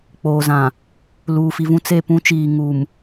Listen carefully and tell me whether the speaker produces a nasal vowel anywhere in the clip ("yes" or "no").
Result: yes